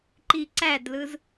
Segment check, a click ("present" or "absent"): present